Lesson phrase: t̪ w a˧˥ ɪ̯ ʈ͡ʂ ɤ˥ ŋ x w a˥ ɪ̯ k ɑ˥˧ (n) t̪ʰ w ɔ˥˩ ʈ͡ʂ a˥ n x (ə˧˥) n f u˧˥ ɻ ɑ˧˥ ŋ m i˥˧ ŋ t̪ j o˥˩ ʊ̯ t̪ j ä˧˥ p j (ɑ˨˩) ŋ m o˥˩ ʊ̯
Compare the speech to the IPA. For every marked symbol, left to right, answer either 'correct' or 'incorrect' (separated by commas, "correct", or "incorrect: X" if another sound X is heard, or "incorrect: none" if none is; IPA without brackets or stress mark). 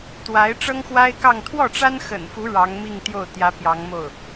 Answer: incorrect: ŋ, incorrect: ə̰˨˩, incorrect: ɑ˧˥